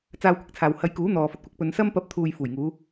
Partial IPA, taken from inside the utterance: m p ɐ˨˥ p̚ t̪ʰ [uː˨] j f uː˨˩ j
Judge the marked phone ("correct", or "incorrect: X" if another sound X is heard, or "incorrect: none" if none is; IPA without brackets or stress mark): correct